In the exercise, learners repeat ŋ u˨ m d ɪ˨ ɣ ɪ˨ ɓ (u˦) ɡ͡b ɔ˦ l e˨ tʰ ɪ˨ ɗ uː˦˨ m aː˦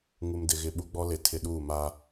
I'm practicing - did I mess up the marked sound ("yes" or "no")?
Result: no